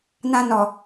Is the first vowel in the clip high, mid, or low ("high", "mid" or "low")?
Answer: low